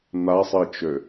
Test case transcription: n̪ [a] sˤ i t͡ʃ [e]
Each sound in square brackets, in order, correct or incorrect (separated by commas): correct, incorrect